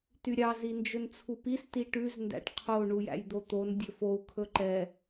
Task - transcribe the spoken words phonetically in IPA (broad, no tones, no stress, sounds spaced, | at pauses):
t y ɾʲ ɑ z i n d͡ʒ ɵ n t͡sʰ u p i s t i ʈ ʉ z n d æ̰ ʈ qʰ o ɳ u j æ̰ j d̪ o t̪ o n dʲ ɵ f o u̯ kʰ ɵ ǃ ɛ